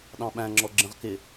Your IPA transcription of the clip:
ɗ ɑ̃ ɓ æ̃ ŋ͡ǁ ɔ ɡ͡ǁ ə̃ ʁ k ɪ

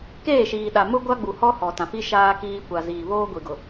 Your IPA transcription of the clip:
k eː˦˨ ʃ iː˨ ɗ a˨ m ʊ˦ ɡʷ a˦ ɡ͡b u˨ h ɔ˦ h ɔ˨ t ã˨ f i˦ ʃ aː˦ k iː˦ kʷ a˨ z iː˨ β oː˦ ɡʷ i˨ ɡ ʊ˨

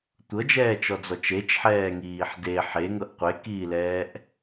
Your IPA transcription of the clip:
tʷ ɤ d͡ʒ ɛː t͡ʃ ɔ d͡z ɔ t͡ʃ e t͡ʃ ħ ɛː ŋ iː ħ d e ħ e ŋ ɤ ʔ qʷ e k iː l ɛː ʔ

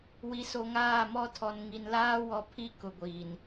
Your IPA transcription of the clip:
w i˨ s o˨ ŋ aː˦˨ m ɔ˦ tʰ ɔ˨ n ŋ i˨ n l aː˦ w ɔ˦ pʰ i˦ k ʊ˨ ɡʷ iː˨ n

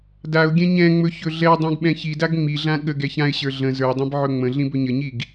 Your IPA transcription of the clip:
d a ʊ̯ ɡʲ ɛ̃ ɲ ɛ̃ ŋ͡m ɵ ç ɵ ɮ ɛ dˤ ĩ ɡ ɓ ɛ̃ ç i d a ɡ ŋ͡m i ɮ ã ɠ ə ɡ ɛ ç ã ɪ̯ ɕ ə˞ ɮ ə̃ z ə˞ dˤ ɛ̃ b ʕ ɵ ŋ͡m ə̃ ɮ ĩ b ɵ ɲ ə ɲ i ɡ

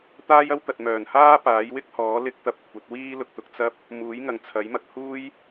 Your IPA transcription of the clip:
t̪ aː˥ j ɐ˥ w t̪ ɐ˨ t̚ m œː˨˩ n h aː˥ p aː˨˥ j w ɪ˥ k̚ h ɔː˨˥ l ɪ˥ k̚ t̪ ɐ˧ p̚ kʷʰ ɐ˨˥ t̚ w iː˥ l ʊ˨ k̚ t̪ ʊ˧ k̚ t͡s ɐ˥ p̚ | m uː˨˥ j ŋ ɐ˨ ŋ t͡sʰ ɐ˨˥ j m ɐ˧ k̚ h uː˥ j

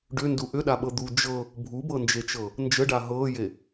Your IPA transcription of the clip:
ɖ ʏ n d u ʔ ʏ ɗ a ɓ ɤ d̪ u d͡ʒ ɤ | bʱ u b ɤ n d͡ʒ e t͡ʃ ɤ | n d͡ʒ ə ɖ a ɦ ɤː j e

